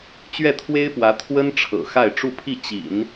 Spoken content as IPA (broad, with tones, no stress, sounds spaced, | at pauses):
t͡ɕ ɥ ɛ˥˩ t̪ʰ w e˥ ɪ̯ p w ä˧˥ t̪ʰ w ə˥ n ʈ͡ʂʰ ɤ̰˨˩ x a˥˧ ɪ̯ ʈ͡ʂ u˥˧ pʰ i˥˩ t͡ɕ ḭ˨˩˦ n